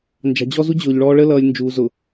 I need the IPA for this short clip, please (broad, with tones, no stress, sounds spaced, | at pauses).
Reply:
n d͡ʒ ɑ̤˨ d͡ʑ ɔ˦ z u˦ d͡ʑ ʊː˨ ʎ ɭ ɔː˦ ɭ ə˦ l ʌː˨ lʲ n d͡ʒ uː˨ z ʊ˨